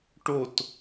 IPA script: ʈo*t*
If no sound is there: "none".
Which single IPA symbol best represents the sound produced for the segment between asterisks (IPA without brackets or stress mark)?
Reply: t